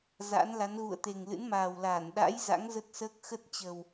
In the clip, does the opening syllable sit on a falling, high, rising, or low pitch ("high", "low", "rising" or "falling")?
rising